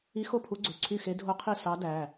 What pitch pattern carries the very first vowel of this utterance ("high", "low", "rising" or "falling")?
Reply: rising